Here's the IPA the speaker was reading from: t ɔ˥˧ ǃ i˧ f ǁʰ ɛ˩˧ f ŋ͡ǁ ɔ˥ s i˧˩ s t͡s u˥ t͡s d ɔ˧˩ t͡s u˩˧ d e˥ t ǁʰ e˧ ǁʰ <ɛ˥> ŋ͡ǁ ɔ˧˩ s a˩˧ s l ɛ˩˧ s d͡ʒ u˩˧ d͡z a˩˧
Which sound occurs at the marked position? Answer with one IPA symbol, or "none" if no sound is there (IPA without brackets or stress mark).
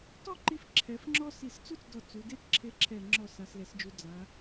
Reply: ɛ˧˩